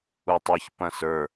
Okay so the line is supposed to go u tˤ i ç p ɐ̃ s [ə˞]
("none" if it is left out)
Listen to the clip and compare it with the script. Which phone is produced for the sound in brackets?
ə˞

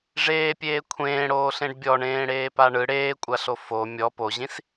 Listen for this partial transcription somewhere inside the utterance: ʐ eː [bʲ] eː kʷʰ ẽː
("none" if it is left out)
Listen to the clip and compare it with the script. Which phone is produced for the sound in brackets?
pʲ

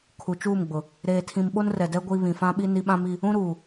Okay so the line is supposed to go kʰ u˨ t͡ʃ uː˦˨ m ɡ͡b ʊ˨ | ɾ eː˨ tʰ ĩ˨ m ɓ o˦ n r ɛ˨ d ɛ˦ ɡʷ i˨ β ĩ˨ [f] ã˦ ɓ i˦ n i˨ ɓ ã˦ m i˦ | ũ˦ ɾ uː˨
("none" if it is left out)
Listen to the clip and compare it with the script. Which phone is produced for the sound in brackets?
f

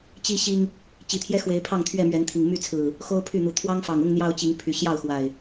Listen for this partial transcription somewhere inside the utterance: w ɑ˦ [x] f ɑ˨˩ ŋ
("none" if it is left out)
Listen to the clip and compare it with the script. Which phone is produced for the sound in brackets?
ŋ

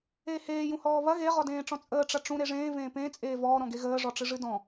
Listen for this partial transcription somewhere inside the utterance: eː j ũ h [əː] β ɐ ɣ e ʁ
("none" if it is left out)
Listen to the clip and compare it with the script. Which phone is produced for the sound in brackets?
ɔː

